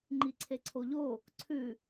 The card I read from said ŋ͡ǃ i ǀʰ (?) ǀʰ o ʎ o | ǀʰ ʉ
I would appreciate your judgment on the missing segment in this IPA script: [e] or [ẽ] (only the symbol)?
e